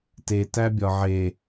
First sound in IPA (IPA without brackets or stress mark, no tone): t